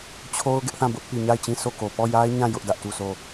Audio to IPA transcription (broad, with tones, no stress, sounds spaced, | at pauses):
t͡ɕʰ o˦ ʊ̯ ɡ ɪ˦ ʔ θ ã˦˨ b ʊ˦ ʔ p i˨ ɲ a˦˨ ɪ̯ t͡ɕ ĩ˦˨ sʰ o˦˨ k o˨ p ɔ˦˨ j a˦ ɪ̯ ɲ ã˦˨ j ʊ˦ ʔ d ä˦ ʔ t u˦˨ sʰ o˦˨